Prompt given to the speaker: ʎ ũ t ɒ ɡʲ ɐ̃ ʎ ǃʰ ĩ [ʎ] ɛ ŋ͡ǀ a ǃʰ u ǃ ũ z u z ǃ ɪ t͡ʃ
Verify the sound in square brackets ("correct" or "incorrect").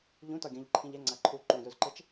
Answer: correct